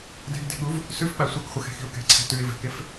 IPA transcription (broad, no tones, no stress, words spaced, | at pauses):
dɛ̤ɡde̤ɠuv | sʉfɓa sʷakχʷəxɛ̤xi̤ʊ̯ kɛ̤ǀʰɛ̤ tʉɪ̯vɛ̤kef